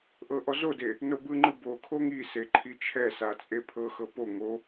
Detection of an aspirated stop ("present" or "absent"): present